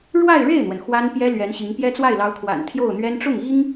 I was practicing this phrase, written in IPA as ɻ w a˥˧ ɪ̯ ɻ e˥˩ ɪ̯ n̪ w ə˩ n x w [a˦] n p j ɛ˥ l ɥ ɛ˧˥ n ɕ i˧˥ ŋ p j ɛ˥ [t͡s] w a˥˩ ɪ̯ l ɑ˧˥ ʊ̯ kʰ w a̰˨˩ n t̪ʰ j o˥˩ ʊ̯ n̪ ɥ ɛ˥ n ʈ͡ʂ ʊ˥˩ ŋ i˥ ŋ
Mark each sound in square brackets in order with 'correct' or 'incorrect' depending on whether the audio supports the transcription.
incorrect: a˥, correct

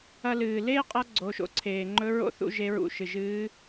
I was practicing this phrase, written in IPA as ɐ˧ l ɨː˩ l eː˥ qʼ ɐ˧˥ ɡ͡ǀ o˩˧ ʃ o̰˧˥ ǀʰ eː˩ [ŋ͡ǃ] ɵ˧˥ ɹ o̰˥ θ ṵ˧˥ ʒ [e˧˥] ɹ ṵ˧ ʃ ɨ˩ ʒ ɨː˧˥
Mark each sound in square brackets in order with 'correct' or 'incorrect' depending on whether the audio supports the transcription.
correct, correct

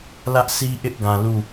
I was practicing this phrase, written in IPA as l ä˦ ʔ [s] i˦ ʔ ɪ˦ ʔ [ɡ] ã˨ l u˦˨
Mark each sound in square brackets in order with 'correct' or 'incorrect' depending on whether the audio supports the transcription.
correct, correct

